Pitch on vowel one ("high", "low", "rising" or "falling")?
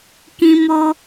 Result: high